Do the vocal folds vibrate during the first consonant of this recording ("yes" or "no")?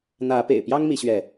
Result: yes